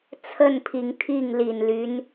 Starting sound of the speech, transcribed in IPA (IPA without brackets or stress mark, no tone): t͡sʰ